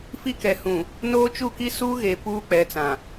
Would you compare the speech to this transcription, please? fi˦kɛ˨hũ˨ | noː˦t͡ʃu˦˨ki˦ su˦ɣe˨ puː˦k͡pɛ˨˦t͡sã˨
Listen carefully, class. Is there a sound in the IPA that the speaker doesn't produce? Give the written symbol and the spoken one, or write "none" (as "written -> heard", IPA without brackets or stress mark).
none